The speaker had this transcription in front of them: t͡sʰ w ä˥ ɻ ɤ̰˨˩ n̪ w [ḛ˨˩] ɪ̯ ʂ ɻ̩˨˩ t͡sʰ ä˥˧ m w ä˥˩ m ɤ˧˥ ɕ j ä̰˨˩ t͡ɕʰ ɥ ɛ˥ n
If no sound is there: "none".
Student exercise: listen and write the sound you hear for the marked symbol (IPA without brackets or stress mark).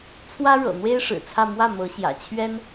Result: e˥